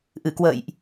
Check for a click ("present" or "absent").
absent